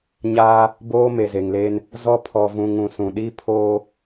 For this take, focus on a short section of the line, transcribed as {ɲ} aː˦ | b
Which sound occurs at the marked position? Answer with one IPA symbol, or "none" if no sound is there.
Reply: ɲ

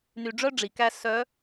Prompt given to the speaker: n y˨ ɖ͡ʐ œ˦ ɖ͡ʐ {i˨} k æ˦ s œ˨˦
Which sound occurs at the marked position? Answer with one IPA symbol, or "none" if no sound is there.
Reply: i˨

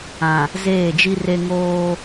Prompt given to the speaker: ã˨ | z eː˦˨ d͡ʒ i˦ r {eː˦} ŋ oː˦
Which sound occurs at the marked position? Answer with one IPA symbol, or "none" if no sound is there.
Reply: e˦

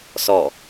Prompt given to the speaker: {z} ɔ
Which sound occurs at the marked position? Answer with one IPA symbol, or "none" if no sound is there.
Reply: s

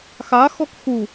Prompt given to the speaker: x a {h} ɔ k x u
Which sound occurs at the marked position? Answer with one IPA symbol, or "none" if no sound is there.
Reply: x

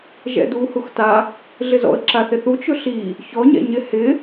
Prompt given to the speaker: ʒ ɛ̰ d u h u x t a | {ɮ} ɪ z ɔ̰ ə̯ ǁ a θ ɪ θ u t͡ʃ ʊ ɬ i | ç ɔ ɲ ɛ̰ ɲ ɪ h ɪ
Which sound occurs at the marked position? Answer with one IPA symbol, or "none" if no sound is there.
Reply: ɮ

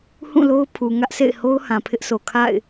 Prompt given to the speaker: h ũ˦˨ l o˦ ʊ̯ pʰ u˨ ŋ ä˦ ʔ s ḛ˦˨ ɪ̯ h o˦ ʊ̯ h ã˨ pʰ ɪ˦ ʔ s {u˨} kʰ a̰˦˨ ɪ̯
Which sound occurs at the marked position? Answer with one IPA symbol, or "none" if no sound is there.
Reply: o˨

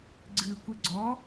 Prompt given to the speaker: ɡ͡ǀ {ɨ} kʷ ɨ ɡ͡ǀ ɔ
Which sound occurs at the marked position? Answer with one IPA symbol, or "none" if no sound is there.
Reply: ɨ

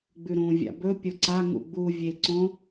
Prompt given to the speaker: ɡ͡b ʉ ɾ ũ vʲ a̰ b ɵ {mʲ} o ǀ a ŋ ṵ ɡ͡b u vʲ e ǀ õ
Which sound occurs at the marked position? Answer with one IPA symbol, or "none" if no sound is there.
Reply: pʲ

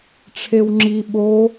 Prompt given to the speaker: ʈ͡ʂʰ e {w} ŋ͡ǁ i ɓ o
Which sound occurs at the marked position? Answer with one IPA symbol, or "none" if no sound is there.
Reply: w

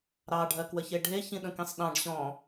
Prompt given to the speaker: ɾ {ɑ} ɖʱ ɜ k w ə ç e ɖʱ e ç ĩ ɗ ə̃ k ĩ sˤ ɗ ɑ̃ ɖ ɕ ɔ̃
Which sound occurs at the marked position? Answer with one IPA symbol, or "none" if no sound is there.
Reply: ɑ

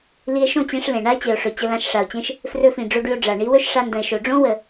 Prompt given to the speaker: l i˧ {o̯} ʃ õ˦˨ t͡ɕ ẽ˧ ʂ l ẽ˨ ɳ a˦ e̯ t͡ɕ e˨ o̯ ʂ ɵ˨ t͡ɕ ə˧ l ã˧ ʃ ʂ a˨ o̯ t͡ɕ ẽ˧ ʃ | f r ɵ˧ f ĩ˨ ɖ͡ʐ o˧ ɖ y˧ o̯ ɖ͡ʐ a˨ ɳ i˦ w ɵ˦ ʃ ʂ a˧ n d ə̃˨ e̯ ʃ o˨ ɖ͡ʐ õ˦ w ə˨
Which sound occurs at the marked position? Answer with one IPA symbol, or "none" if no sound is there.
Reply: e̯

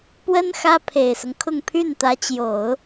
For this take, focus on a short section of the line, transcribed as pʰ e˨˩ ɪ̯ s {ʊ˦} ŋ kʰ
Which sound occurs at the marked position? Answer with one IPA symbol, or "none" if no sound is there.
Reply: ʊ˦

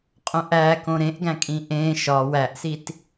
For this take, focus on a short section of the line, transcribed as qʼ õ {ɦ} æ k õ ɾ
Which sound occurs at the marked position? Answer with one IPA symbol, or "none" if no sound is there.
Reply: ʔ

